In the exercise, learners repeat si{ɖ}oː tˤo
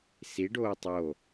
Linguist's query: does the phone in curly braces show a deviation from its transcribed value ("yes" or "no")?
no